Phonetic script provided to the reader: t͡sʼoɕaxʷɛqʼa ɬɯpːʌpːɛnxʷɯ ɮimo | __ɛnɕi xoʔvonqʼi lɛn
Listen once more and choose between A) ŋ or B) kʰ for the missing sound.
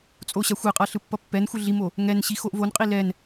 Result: A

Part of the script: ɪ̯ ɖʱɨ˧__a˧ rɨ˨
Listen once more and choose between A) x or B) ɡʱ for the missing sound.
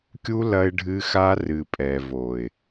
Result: A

